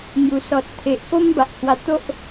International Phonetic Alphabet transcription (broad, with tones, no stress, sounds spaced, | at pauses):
ŋ j u˨˩ s ɔ˨ t̚ t̪ʰ e˨ ʔ k o˦ m b a˨ ʔ h w a˧ t̪ o˦ ʔ